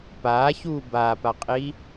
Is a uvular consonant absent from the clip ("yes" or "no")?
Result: no